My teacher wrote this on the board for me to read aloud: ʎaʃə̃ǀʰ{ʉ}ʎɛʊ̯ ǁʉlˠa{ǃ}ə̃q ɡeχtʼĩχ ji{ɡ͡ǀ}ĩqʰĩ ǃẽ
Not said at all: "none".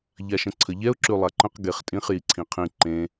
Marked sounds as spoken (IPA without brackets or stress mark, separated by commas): ə, ǃ, ǀʰ